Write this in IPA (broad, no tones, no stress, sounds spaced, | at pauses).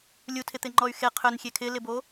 lʲ u tʰ ɪ t̪ ɪ ŋ͡ǃ ɔ y̯ x e qʰ ʏ n xʲ e kʰ ɪ l ɪ b o